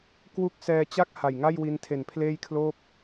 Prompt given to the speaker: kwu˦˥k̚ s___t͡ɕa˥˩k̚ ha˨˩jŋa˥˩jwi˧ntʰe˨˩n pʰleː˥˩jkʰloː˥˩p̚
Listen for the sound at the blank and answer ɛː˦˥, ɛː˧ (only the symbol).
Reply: ɛː˧